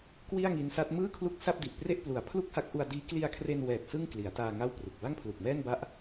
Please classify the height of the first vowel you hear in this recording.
high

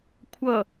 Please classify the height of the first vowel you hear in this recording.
mid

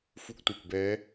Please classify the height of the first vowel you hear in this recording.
high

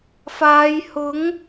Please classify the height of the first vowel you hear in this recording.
low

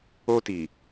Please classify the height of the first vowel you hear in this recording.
mid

